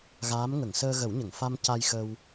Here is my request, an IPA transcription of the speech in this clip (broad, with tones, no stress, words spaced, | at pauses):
ɣaː˧˥m ŋə˨˩˨ŋsəː˧ɣə˨˩˦wɲə˨˩˨ŋ fa˧m ca˧jxə˧w